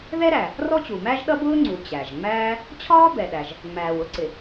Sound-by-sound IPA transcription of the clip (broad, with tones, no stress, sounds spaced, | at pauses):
ð ɛ˥ ɾ æ˩ | r ɔ˥ t͡ɕ u˩ m æ˥ ʒ ɗ ʌ˥ b ʊː˥ ŋ͡ǀ u˩ t͡ɕ æ˩ ʒ ŋ͡m æː˥ | t͡ɕʰ ɒː˥ b ɛ˩ ɗ æ˩ ʒ | ŋ͡m æː˩ w ʊ˥ ǀ ɪ˩